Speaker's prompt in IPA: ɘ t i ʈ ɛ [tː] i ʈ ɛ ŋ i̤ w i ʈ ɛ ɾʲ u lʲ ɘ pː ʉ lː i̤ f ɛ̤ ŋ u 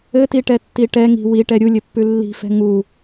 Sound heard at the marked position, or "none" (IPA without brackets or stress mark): tː